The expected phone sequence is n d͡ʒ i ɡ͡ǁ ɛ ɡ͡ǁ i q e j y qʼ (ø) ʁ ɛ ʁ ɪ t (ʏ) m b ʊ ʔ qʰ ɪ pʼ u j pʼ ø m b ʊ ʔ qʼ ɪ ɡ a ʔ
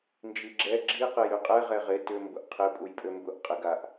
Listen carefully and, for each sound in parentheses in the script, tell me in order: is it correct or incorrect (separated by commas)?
incorrect, correct